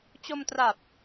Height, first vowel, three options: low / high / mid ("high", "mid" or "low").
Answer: mid